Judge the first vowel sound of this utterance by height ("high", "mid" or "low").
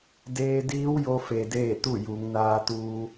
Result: mid